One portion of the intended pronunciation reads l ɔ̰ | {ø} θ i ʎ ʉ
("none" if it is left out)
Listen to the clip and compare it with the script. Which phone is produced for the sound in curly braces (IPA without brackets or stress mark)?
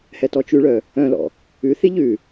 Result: ʉ